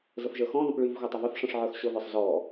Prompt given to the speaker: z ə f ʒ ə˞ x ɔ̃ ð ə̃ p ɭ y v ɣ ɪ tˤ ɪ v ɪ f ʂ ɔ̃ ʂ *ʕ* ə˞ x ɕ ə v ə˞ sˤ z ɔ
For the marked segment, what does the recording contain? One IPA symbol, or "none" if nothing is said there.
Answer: ʕ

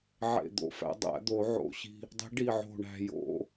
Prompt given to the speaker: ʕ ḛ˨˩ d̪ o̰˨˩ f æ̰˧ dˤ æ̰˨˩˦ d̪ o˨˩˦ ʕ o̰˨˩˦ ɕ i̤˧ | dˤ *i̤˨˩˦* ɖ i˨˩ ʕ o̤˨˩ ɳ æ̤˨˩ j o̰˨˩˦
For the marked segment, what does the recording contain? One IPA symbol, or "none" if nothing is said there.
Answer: i̤˨˩˦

